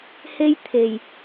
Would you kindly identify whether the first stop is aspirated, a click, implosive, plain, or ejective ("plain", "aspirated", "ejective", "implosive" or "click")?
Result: aspirated